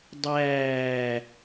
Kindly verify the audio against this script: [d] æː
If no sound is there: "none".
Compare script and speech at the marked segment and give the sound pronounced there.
dˤ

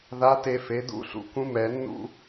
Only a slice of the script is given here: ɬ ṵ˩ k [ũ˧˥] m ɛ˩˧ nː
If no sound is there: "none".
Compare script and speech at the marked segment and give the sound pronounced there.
ũ˧˥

